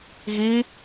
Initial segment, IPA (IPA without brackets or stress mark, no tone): ɣ